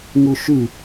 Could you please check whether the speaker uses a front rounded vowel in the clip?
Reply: yes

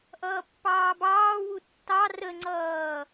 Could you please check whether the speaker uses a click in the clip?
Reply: yes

